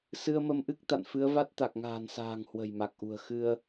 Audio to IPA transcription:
s ɨ˧ ə̯ m ə˧ m ʔ ɨ˦˥ k̚ t̪ a̰˧˨ n f ɨ˨˦ ə̯ v a˦˥ t̚ t̪ a˨˩ k̚ ŋ a̤ː˨˩ n s a̤ː˨˩ ŋ h w ə̤˨˩ j m a˨˩ k̚ ʔ ṳ˨˩ ə̯ x ɨ˧ ə̯

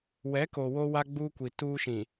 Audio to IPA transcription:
w ɛ˨˦ k o˨ w o˦ w a˦ ɡ͡b uː˦ kʷ i˨ t uː˦ ʃ ĩ˨

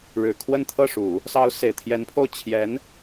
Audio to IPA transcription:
ɻ ɻ̩˨˩ kʰ w ə˥˧ n t̪ʰ ɤ˥˩ ʂ u˨˩˦ | s ɑ˧˥ ʊ̯ s e˨˩ ɪ̯ t̪ʰ j ɛ˧˥ n pʰ o˥˩ ʊ̯ t͡ɕʰ j ɛ˧˥ n

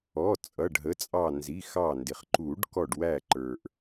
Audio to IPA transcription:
ɔ˩˧˩ t͡sʼ ʌ˩˧˩ ɖ ɦ ə˩˧˩ t͡sʼ ɑ˧˩ n z i˩˧˩ x ɑ˧˩ n d ɪ˩ χ ǃ u˨˩˦ ɖ k ɔ˧˩ ɖ w æ˧˩ ǃ ə˞˩ ʔ

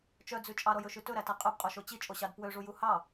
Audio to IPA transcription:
t͡ʃ œ d͡z ʉ t͡ʃʼ ɑ ɾ ɔ j ɵ ʃ ʉ t ɵ ɾ æ t æ qʼ ɵ b qʼ u ʃ o t͡ɕ i t͡ʃʼ o ɕ ɑ d p w ø ʐ u j u h ɑ

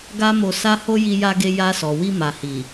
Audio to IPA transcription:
ɡ a˦ m o˧ s a˦ h o˦ j i˧ j a˧ ɡ e˧ j a˧ s ɔ˨ w i˧ m a˨ h i˨

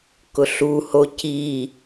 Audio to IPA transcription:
k ʊ ɬ u h o c i

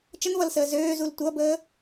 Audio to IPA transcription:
t͡ʃ ə n v ʌ l s əː z øː z u l tʷ ʌ b əː

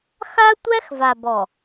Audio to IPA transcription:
x a˦ tʷ æ˦ x v a˨ b ɔ˨

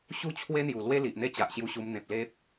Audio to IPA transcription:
ɕ u˥˧ t͡ɕʰ w e˦ n̪ j u˨˩ l w e˦ l i˨ ʔ n̪ e˦ t͡ɕ a˨ ʔ ɕ j u˧ ɕ u˧ m n̪ ẽ˨ p̚ l e˦ p̚

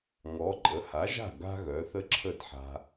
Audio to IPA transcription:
ŋ ɔ˩˥ ǃʼ ə˩˥ h a˩˥ ʒ a̤˥˩ ɡ a̤˥ ɣ œ˩˥ θ ə˥ ǁʰ ə˥˩ d ħ a̤˧

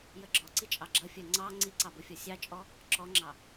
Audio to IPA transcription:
j ə ɡ͡ǁ ɔ ǀ i t͡ʃʼ ɑ ɡ͡ǁ ʌ fʲ ɜ ŋ͡ǀ ɑ ŋ͡ǀ i ǀ ɑ b ʊ fʲ ɔ sʲ ɑ t͡ʃʼ ɔ | ǁ ɔ ŋ͡ǁ ɑ

